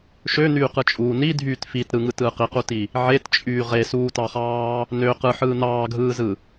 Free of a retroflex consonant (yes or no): yes